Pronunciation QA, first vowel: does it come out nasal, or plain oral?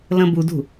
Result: nasal